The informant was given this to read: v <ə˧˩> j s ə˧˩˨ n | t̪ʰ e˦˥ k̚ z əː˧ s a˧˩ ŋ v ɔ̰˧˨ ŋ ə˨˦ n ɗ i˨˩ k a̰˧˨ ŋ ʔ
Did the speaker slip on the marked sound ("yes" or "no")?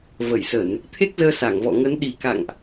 no